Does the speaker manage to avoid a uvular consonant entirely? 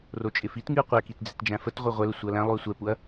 no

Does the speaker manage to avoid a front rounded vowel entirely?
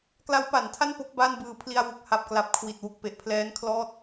yes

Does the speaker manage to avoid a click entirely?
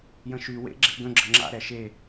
no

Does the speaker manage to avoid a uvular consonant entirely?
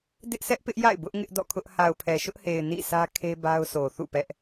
yes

